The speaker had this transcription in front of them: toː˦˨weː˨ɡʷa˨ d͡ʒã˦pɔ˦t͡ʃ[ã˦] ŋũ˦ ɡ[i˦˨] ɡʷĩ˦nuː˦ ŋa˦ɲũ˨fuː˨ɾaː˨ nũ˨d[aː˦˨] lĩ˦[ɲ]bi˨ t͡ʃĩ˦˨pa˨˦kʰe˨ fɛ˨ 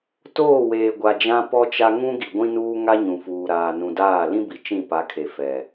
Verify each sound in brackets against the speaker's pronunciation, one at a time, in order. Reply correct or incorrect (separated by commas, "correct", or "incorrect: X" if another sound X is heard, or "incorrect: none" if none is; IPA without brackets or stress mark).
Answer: incorrect: a˦, incorrect: i˨, correct, incorrect: none